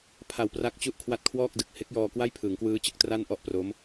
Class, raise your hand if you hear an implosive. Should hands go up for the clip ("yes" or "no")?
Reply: no